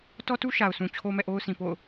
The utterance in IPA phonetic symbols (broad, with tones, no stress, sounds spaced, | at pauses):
t ɔ˦ t u˦ ʃ a˨ ʊ̯ sʰ ũ˨ t͡ɕʰ o˦ m ɛ̰˦˨ ʔ o˦ ʊ̯ sʰ ĩ˨ p o̰˦˨ ʊ̯